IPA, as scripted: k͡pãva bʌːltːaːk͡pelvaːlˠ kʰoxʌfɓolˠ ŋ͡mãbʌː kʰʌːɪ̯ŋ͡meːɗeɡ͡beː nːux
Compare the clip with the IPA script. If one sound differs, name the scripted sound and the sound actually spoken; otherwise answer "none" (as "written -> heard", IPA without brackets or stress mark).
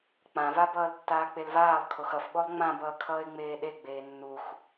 none